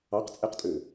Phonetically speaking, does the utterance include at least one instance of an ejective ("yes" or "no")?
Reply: yes